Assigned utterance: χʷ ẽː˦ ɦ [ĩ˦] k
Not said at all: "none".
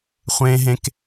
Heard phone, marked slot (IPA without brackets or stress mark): ẽ˦